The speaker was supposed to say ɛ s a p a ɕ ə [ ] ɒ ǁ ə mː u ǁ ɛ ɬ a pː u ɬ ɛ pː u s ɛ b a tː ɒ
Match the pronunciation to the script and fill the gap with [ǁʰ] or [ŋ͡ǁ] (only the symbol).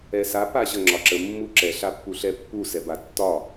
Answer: ŋ͡ǁ